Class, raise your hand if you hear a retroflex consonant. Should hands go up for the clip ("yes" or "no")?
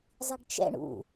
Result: yes